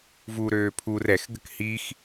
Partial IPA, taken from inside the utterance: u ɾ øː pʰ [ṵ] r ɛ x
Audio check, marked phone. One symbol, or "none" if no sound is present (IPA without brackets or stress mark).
u